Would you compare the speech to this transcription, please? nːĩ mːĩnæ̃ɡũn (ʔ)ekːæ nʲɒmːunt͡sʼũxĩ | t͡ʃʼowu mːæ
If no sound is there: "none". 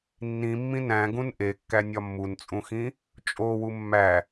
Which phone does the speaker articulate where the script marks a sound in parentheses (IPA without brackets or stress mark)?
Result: ʔ